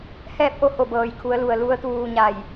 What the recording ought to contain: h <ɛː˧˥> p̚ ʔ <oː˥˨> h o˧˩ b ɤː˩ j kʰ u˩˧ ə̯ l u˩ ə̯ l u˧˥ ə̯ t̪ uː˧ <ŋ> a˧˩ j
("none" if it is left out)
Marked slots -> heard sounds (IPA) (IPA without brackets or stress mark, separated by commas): ɛː˥˨, o˥˨, ɲ